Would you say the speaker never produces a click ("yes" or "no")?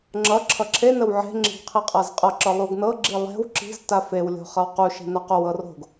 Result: no